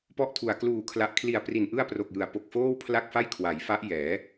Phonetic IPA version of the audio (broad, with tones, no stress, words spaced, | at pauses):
pɔ˥˩ʔtʰu˨˩a̯ kluː˨˩kʰla˨˩ʔkʰli˨˩a̯ pri˨˩nʔɯ˥˩a̯pro˨˩k̚jɯ˩˦a̯ po˨˩k̚foː˥˩wpʰla˥˩k̚fa˥˩j kʰwa˩˦jfa˦˥ʔ jɛː˩˦